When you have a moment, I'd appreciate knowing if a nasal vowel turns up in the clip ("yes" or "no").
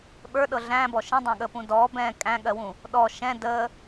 yes